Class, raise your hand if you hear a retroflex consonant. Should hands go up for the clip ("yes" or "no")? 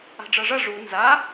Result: yes